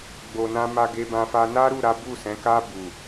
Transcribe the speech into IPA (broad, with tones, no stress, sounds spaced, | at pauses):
ɡ͡b o˨ n ã˧ m a˧ ɡ e˧ b ã˧ f a˦ n a˦ ɾ u˦˨ ɾ a˨˦ b u˦˨ s ɛ̃˨˦ k a˦ b u˦˨